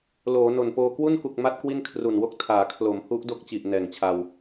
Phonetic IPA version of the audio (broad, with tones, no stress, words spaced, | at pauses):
loː˩˦no˨˩npoː˧ kwu˥˩nku˨˩k̚ma˦˥t̚ kwi˥˩nkʰru˨˩nwo˥˩k̚ tʰaː˩˦kʰlo˩˦mhu˦˥ʔ do˥˩k̚t͡ɕi˨˩ʔ nɛː˨˩ŋt͡ɕʰa˧w